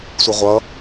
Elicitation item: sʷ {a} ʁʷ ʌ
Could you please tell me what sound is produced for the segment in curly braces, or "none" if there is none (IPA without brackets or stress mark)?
ə